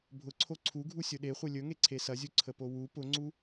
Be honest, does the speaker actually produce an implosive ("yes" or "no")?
yes